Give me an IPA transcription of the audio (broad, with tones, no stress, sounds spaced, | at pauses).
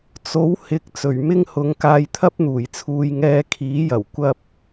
t͡s o˨˥ w h ɪ˨˥ k̚ t͡s ɵ˨˩ ɥ m ɪ˥ ŋ h ʊ˨˥ ŋ k aː˧ j t̪ʰ ɐ˥ p̚ n̪ uː˨˩ j t͡sʰ uː˧ j ŋ ɛː˧ kʰ iː˨˥ j ɐ˨˩ w kʷ ɐ˥ p̚